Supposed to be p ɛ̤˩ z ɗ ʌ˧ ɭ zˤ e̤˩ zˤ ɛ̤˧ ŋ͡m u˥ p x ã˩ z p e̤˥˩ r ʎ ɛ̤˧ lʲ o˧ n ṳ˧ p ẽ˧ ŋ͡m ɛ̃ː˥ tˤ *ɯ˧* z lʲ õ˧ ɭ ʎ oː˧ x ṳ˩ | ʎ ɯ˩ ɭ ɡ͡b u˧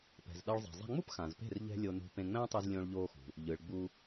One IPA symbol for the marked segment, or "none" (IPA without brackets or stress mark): ɯ˧